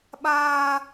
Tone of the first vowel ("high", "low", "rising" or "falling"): high